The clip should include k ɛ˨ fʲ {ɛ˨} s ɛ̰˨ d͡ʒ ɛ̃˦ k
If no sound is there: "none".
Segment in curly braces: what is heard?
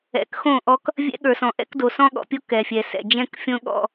ɛ˨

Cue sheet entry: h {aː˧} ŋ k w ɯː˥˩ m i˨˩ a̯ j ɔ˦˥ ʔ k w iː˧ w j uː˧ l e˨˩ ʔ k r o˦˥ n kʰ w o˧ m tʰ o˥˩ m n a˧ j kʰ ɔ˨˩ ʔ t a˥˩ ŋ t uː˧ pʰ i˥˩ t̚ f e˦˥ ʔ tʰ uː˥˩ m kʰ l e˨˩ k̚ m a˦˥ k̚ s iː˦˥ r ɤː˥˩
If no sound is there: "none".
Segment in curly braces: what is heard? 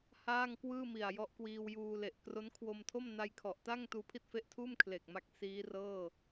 aː˥˩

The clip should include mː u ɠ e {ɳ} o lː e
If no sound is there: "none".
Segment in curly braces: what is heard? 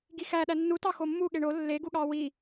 ɳ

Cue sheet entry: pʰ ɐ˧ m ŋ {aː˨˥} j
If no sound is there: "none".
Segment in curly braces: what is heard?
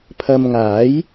aː˨˥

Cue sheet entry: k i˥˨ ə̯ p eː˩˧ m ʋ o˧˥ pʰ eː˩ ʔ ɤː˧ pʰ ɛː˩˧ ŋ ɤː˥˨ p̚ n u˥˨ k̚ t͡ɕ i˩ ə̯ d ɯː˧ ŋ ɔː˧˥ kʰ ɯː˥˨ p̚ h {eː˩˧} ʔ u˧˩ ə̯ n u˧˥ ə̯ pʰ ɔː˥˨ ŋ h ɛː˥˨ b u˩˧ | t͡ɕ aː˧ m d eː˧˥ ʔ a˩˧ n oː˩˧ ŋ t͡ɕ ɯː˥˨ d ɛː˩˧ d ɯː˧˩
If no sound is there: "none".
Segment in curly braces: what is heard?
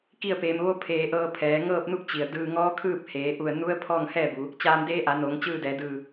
eː˩˧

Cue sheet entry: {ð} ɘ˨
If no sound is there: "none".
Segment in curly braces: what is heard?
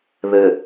ð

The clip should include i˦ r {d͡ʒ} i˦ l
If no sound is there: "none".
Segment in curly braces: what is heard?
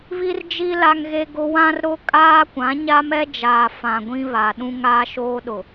d͡ʒ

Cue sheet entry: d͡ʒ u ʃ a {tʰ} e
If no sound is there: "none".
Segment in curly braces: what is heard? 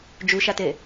t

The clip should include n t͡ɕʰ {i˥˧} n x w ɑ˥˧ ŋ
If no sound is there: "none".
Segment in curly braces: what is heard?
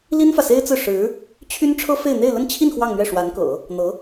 i˥˧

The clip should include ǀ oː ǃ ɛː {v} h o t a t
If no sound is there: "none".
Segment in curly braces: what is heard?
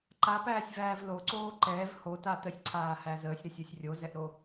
v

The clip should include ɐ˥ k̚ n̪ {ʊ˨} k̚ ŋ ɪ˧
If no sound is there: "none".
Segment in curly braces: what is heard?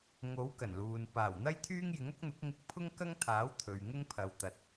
ʊ˨˥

